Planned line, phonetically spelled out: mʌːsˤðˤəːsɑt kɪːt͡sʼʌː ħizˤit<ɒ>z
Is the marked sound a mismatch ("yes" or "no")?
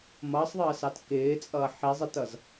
yes